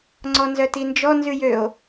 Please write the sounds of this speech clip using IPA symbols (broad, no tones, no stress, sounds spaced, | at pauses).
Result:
ŋ͡ǀ ɔ n z œ t i n d͡ʒ ɔ n z ʉ j ø o̯